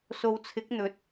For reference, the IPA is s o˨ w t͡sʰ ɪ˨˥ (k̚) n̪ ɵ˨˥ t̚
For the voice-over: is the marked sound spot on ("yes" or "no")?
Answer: yes